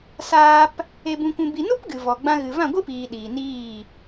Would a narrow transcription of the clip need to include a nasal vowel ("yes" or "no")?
yes